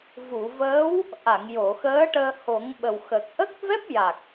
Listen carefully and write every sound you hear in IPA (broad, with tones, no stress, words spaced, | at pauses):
vu˨˩˨vəː˧˥w | ʔa˨˩˨ŋ jo˨˩˨xəː˧˥ʈəː˧ ho˨˩˦ŋɓə˨˩wxə˨˩k̚ ʔə˦˥k̚vɛ˦˥p̚ ja˨˩k̚